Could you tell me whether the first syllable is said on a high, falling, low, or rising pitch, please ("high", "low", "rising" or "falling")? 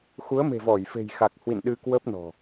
rising